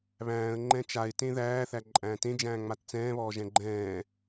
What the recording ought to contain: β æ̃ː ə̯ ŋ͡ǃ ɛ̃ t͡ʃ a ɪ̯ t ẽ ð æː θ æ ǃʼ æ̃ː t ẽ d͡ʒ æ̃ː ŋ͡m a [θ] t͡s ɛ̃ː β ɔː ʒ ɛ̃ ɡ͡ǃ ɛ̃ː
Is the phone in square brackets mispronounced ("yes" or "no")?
yes